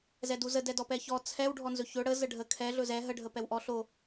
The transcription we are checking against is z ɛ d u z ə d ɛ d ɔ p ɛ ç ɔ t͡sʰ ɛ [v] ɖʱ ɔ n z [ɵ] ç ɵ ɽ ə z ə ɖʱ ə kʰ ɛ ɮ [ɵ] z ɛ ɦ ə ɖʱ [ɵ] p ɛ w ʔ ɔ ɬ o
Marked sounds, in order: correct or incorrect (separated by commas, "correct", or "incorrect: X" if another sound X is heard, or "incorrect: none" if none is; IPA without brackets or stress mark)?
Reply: incorrect: w, correct, correct, incorrect: ə